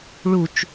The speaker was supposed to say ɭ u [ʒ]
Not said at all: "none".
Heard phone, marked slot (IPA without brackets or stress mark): t͡ʃ